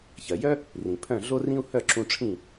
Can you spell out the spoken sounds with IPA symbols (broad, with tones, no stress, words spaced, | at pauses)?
çɜ˨ jœ˦ | rĩ˨pʰœ̃˦˨ ɮo˦rĩ˦u̯ hœ˦˨ǁũ˧ʈ͡ʂʰĩ˦˨